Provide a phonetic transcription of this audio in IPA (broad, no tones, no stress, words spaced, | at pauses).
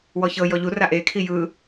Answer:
wɔçɤjɔ ʎura ʔekʰi jɯ